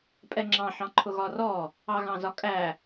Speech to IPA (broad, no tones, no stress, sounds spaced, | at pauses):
pʼ ɛ ŋ͡ǁ ɑ̃ ħ ɑ̃ ǃʰ ʊ ɣ ɒ r ɔ | ɑ ɣ ɑ̃ z ɒ kʼ æ